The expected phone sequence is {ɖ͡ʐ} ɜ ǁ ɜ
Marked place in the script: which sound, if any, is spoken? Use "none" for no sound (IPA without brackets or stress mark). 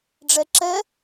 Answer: ɖ͡ʐ